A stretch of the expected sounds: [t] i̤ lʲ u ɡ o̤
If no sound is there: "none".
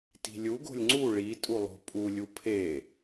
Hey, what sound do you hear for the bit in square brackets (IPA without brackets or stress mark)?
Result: t